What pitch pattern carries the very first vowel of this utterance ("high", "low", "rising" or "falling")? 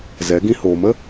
rising